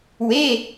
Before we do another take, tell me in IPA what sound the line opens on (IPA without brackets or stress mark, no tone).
w